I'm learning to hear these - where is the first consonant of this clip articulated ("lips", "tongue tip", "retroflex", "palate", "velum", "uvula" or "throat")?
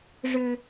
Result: retroflex